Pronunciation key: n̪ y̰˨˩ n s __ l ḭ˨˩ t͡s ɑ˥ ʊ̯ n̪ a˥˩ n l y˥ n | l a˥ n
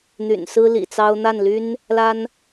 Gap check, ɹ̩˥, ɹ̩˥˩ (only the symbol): ɹ̩˥